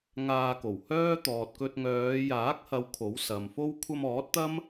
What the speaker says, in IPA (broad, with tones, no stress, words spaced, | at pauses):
ŋaː˧ko˨˩whœː˥ t̪ɔː˨t̚kɵ˧t̚ ŋœː˨˧jaː˨˥k̚hɐ˨˧w kʰo˨˥wsɐ˨mfo˥w kʷʰɐ˧mɔː˨˥t̚t̪ɐ˥m